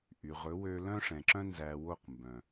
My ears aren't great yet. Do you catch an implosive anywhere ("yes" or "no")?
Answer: no